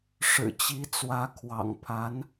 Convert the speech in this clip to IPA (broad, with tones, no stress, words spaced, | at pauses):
ʂɻ̩˨˩t͡ɕi˧˥ t͡swä˧˥kʰwɑ̰˨˩ŋpʰa˧˥n